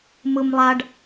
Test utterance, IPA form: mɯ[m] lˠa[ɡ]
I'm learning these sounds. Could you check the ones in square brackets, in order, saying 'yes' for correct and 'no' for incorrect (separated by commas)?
yes, no